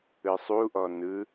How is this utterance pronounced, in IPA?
ɯ sˤ u ʔ ɔ n ɯ

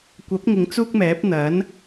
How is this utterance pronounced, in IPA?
kʷ ɐ˨˥ p̚ ŋ ɪ˨˧ ŋ t͡s uː˥ k̚ m ɛː˨˥ p̚ n̪ ɐ˨˥ n

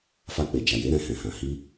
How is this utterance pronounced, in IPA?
f a˧ k͡p e˨ d͡ʒ a˨ j e˨˦ ɾ ɛ̃˧ h ɛ̃˨ h ã˨ h i˧

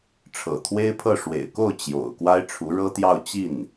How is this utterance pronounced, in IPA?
ʈ͡ʂʰ ɤ̰˨˩ t̪ʰ w e˥ ɪ̯ pʰ ɤ˥˩ ʂ w ḛ˨˩ ɪ̯ k o˥˩ ʊ̯ t͡ɕ j o̰˨˩ ʊ̯ k w a˥ ɪ̯ ʈ͡ʂʰ u˧˥ ɻ ɤ˥ t̪ j ɑ˥˧ ʊ̯ t͡ɕ i˥˩ n

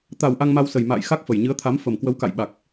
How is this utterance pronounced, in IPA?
t̪ a˨˩ w ʔ a˧ ŋ m a˧ w s ə˨˩ j m a̰ː˧˨ j x a˦˥ k̚ f ə˨˩ j ɲ ɨ˨˦ ə̯ t̪ʰ a˨˦ m f ə˨˩ m k w ə˨˦ w k a̰˧˨ j ɓ a˨˩ k̚

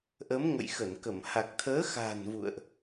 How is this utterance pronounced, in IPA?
ʔ ə˨˦ m ŋ ə̰˧˨ j x ə˧˩ n k ə˧˩ m h a˨˩ k̚ t̪ʰ əː˨˦ x a̤˨˩ n v ṵ˧˨ ə̯ ʔ

